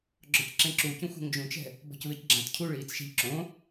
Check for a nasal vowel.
present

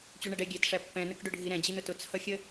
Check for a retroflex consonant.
present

